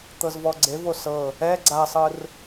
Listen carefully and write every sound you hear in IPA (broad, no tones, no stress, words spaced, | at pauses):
t̪ɤzvɔɡ͡ǀevo sɤ | ɛ ɡ͡ǀasˤɯr